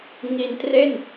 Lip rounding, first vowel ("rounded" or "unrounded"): unrounded